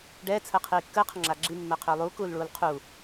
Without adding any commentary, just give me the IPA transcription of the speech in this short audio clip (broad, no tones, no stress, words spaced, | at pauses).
ɖɛː t͡sʰəːqʰiːkːəː qʰəŋ͡ǁaːɡ͡ǁi mːəːqʰʏːlˠuː kuːlɭuːlqʰuː